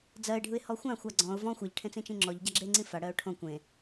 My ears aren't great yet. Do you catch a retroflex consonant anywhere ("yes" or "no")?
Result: yes